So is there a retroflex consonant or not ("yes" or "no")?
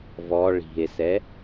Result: yes